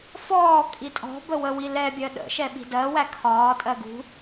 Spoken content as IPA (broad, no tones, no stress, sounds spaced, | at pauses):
f ɔː kʼ i tʼ ɔ̤ b ə w ə w i l ɛ bʲ ɜ ɗ ə̰ ʃ ɛ ɓ i̤ d ɜ w æ kʰ ɒː tʼ ɜ ɡ ṳ